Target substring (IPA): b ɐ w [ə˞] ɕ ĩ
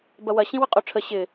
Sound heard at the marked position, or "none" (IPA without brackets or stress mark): ɐ